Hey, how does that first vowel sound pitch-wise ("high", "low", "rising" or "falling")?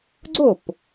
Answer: falling